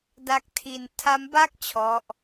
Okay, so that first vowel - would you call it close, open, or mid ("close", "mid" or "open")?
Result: open